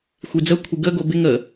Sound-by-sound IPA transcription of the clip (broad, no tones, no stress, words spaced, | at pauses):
xʷid͡zə kʷʰɪɡə ɡobɪ ŋə